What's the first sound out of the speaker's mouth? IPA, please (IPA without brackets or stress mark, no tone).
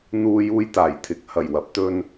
n̪